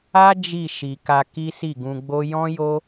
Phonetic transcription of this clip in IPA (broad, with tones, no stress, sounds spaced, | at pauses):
a˦ d͡ʒ i˦˨ ʃ i˨ k a˧ k i˦ s i˦˨ ɡ ũ˧ ɡ͡b o˦ j ɔ̃˦ j o˦